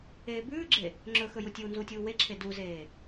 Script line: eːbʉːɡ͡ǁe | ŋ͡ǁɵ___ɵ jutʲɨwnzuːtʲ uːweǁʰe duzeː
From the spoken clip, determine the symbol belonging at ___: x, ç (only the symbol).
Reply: x